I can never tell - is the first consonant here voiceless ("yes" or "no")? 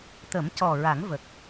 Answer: yes